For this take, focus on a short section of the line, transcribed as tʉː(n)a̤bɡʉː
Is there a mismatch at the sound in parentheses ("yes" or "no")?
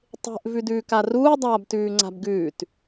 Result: yes